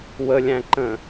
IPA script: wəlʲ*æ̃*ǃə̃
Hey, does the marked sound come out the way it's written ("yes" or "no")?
yes